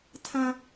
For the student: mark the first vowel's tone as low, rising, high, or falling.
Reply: high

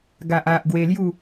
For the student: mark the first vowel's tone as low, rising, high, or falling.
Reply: low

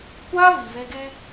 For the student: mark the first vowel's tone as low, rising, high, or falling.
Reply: high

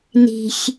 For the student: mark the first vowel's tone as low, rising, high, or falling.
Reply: low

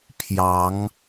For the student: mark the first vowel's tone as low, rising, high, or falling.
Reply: rising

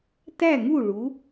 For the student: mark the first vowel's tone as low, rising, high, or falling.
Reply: falling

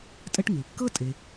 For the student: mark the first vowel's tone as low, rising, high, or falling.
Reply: high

